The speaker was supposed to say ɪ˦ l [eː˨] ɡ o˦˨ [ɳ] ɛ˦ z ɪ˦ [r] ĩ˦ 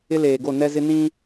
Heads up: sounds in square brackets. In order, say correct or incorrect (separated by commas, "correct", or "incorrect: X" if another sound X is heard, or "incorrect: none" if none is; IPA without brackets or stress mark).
correct, incorrect: n, incorrect: n